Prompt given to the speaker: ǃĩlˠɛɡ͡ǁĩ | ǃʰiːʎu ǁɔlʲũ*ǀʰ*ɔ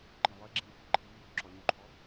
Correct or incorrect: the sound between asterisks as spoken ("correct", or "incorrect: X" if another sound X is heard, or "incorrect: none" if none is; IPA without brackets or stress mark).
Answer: incorrect: ǃʰ